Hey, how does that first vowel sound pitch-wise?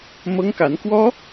high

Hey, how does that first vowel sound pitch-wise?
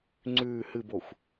low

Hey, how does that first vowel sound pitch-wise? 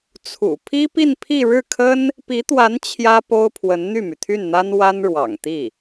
low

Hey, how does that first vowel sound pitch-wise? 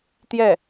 falling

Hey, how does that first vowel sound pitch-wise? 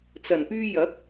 low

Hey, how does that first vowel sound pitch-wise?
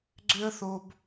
high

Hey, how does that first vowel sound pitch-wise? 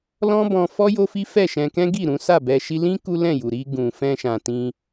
high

